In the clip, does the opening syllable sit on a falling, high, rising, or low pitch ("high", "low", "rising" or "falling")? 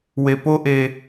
low